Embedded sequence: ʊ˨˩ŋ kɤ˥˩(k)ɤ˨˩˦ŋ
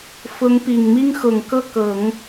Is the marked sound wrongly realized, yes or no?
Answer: no